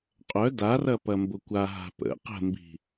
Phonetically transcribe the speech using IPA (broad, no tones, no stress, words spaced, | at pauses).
qʼœ darɐ pɐmbʊkʷaɦa̤ pə̰ qə̤mbi̤